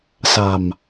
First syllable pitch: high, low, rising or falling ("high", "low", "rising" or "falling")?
low